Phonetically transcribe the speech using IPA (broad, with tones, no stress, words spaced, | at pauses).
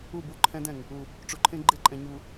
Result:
u˦˨bu˦ǃʰɛ̃˦dɛ̃˨ŋ | u˨ | ʈ͡ʂu˨ǃʰẽ˦ɡ͡ǃɪ˦˨ǃʼɛ̃˨ ɲu˨